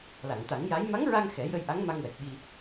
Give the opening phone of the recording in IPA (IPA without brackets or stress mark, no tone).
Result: l